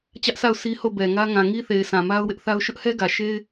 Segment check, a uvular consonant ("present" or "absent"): absent